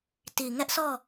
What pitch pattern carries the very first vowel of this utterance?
low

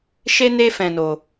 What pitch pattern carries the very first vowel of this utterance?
high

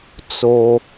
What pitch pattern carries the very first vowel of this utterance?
low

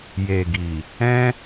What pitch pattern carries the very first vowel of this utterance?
low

